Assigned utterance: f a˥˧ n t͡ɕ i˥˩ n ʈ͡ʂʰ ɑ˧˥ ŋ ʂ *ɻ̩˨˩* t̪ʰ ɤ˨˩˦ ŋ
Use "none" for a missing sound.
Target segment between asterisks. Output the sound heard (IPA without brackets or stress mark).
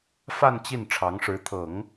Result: ɻ̩˧˥